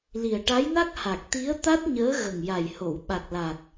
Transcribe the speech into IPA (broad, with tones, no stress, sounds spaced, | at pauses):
l i˨˩ ə̯ ʈ a˧˥ j n a˦˥ k̚ h a˨˩ k̚ t̪ i˧˥ ə̯ t̪ a˦˥ t̚ ɲ əː˧˥ ɣ ə˨˩ ŋ j a˨˩ j h o˨˩˨ w ɓ a˨˩ k̚ l a˨˩ k̚